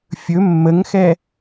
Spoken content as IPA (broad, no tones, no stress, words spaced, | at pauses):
fʲɵ mːəŋxɛ